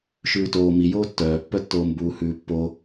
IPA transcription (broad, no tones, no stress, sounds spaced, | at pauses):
ʃ ʉː t oː m i j oː tː œː pː œ tː oː m b uː h ʉː pː o